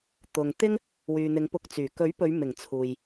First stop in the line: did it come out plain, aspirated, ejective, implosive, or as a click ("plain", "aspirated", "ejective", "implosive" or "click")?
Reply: plain